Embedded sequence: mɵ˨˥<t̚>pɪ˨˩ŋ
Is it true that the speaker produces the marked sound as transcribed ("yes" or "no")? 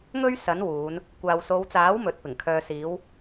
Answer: yes